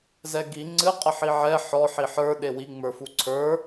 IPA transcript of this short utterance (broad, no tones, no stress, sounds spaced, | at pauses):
z ɛ ɡ i ŋ͡ǀ ɨ qʼ ə ħ i ʕ ɛ ħ ɔ ħ i ħ ə˞ ɗ e w i ŋ͡m ə˞ f u ǀʰ ə˞